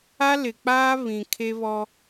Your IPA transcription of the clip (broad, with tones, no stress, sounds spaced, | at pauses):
a˦ l ɪ˨ k͡p aː˦ β ĩ˨ kʰ e˦ β ɔ˦